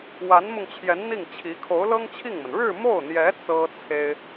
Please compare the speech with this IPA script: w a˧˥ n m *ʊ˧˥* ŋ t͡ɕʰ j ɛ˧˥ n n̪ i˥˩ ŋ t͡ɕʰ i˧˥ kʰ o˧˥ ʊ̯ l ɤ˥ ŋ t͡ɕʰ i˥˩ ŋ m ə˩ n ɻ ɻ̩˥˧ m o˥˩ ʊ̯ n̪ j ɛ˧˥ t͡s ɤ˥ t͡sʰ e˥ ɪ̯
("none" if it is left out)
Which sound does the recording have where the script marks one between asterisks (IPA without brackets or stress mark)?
ʊ˧